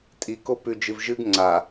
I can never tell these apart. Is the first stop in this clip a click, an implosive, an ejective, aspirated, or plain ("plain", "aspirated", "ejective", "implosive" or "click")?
ejective